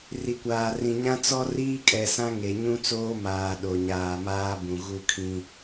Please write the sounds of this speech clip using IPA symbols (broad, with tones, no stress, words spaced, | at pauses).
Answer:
ri˨kʷaː˨ rĩ˨ ɲã˦t͡sɔ˦ riː˦kʼɛ˨sã˦ ŋe˨ ɲũ˦t͡soː˦maː˨ ɗo˨ ɲaː˨maː˦bũ˨ ɣu˦kʰĩ˦